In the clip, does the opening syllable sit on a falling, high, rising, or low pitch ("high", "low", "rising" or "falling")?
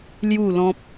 falling